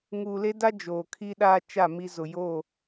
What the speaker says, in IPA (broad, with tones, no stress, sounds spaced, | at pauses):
ŋ uː˨ l e˦ d a˦ d͡ʒ oː˨ kʰ i˦ ɗ aː˦ t͡ʃ a˦˨ m i˨ z ʊ˨ j oː˦˨